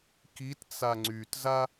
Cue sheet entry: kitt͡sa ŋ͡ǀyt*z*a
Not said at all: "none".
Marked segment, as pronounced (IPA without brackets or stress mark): z